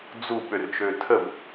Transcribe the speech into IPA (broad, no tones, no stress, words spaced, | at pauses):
d͡zu ɓørt͡ʃøtʰəb